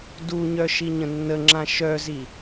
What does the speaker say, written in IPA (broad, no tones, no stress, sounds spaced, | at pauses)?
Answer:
d u ɲ œ ʃ i ɲ ə̃ nː ə ŋ͡ǁ ã ʃ œ z i